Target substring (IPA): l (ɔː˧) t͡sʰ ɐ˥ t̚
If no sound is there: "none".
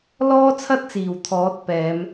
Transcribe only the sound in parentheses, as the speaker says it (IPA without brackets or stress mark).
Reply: ɔː˥